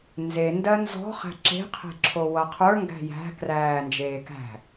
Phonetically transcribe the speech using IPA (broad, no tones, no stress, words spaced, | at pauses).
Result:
nze ndɜnzɔ̤ χæ̤ǁe̤qʰe̤ ǁʰowʌqʰə˞ ŋɡæ̤jæ̤ kræːnd͡ʒeːkæ̤